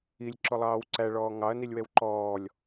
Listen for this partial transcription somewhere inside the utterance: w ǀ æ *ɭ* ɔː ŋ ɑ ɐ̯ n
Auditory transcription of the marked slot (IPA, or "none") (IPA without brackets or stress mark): ɭ